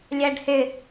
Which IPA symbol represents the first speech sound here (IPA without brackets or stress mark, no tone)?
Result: lʲ